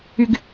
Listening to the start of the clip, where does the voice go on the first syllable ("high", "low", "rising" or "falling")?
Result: high